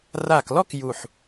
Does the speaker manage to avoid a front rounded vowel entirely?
yes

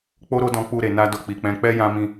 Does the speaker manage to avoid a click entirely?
yes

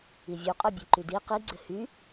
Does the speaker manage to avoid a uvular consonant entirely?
no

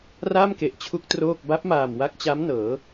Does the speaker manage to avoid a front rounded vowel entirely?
yes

